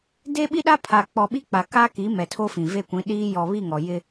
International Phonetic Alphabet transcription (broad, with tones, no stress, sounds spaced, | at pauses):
d e˦ ɓ i˦ ɗ a˦ pʰ a˨ k͡p ɔ˨ ɓ i˦ k͡p a˨ k a˦ k i˨˦ m ɛ˨ tʰ o˦ f ĩ˨ v e˦˨ kʷ ĩ˨˦ ɗ iː˦ j ɔ˨ β i˦˨ ŋ ɔ˨ j ɪ˦